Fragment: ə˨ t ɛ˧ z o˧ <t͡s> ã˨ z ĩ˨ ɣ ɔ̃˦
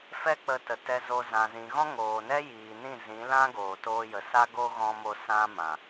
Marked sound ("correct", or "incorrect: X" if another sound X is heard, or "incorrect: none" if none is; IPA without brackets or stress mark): incorrect: z